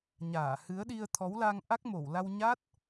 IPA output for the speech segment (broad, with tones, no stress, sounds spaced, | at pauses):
ɲ aː˧˩ h ɨ˨˦ ə̯ ɗ i˧ ə̯ t̪ʰ ɔ˨˦ w l a˧ ŋ ʔ a˦˥ k̚ m o˧˩ w l a˧ w ɲ a˦˥ t̚